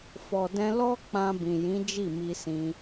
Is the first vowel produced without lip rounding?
no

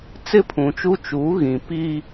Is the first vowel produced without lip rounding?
yes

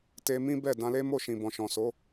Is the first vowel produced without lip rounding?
yes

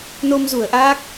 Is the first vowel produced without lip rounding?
no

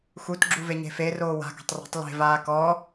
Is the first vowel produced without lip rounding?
no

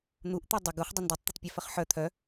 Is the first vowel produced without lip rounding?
no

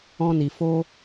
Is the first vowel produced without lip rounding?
no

